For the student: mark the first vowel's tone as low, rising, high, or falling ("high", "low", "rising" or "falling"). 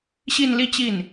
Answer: falling